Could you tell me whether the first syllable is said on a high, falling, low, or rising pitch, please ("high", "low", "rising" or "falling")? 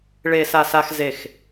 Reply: low